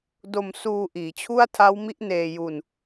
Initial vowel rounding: rounded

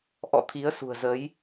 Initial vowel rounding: rounded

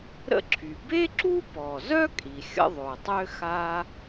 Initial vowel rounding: unrounded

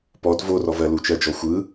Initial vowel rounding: rounded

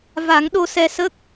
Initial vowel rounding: unrounded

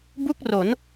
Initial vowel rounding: rounded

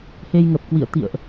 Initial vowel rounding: unrounded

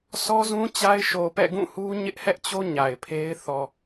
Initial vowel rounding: rounded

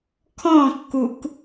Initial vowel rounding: rounded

